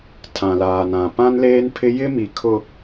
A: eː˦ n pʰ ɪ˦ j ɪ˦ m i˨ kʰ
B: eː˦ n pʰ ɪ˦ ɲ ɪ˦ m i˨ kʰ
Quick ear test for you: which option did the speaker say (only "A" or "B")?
A